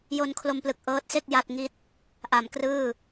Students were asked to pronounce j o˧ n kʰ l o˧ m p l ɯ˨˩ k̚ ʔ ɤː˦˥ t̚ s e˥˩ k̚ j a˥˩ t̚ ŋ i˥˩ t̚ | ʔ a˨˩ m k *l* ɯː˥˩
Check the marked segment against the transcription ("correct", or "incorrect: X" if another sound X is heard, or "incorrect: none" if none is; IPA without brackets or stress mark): incorrect: r